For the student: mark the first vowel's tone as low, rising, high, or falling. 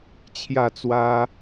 falling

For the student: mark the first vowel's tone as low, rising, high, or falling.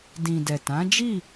low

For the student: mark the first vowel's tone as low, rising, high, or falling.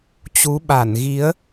rising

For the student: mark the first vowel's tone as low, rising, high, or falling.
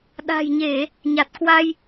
low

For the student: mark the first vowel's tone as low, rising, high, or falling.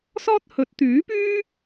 high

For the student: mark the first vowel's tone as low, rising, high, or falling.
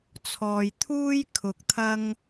low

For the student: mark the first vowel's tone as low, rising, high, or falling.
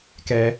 high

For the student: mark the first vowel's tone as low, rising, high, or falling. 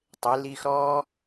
rising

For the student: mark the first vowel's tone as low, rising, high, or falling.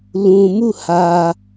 low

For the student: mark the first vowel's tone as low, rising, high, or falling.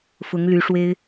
rising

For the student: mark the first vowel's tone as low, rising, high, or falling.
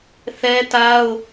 high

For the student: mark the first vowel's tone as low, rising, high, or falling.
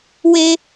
high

